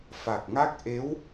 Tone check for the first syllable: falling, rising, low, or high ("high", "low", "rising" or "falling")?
low